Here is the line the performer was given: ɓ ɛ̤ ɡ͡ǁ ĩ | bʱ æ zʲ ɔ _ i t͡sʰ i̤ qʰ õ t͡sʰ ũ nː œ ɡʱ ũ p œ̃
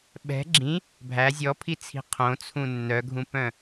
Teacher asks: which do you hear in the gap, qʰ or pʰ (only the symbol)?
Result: pʰ